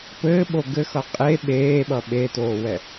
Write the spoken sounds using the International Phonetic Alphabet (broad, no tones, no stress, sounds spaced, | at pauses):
p ɘː ɓ o ɡ ɘ x ʌ qʼ e ɓ eː ɓ ʌ ɓ e t oː w ɛ